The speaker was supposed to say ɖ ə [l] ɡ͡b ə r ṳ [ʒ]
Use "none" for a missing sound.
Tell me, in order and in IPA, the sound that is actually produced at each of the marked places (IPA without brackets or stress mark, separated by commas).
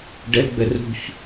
l, ç